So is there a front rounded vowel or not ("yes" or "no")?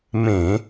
no